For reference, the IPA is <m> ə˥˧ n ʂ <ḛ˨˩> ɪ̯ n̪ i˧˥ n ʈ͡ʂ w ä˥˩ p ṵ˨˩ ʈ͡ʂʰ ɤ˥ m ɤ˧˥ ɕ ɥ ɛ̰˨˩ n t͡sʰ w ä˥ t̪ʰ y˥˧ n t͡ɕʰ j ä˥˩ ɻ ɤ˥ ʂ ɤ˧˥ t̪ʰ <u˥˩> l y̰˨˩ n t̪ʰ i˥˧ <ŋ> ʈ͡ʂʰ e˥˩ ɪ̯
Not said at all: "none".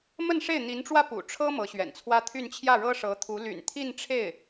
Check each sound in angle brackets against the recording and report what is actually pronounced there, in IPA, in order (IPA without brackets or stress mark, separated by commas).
m, e˥˩, u˧˥, n